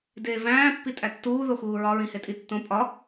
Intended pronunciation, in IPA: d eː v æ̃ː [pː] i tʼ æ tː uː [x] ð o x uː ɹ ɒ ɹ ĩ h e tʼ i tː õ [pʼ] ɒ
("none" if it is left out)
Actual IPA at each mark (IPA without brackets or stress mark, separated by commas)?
pː, none, pʼ